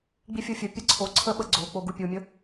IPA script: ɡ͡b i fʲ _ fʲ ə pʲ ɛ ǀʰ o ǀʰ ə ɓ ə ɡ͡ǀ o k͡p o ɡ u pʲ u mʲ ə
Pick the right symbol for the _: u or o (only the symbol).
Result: o